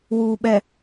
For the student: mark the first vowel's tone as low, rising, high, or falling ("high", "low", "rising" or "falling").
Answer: low